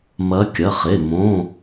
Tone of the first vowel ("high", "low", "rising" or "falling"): rising